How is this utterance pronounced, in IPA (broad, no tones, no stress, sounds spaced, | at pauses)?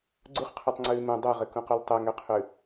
ɡ͡ǀ u χ qʰ ʉ tˤ ŋ͡ǀ ʉː m ũ dˤ ø ʁ ɘ k ũ q u l tˤ ɘ ŋ ø qʰ ʉ